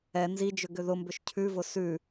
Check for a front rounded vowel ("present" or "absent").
present